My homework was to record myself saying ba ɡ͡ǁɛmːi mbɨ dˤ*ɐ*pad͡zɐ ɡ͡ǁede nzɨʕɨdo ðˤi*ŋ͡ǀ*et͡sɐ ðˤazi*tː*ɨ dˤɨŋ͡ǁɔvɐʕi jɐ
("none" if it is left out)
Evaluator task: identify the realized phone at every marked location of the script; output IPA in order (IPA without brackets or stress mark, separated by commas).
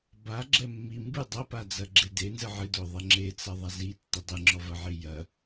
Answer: ɐ, ŋ͡ǁ, tː